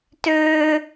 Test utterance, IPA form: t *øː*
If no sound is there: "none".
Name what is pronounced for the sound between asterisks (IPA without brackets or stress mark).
øː